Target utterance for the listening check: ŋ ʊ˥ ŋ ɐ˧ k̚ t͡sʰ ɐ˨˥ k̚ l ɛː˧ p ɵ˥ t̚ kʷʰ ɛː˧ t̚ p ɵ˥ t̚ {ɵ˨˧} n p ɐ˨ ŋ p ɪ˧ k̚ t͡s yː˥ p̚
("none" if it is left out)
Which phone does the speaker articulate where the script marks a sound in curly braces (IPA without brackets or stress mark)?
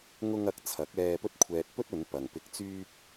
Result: ɵ˨˧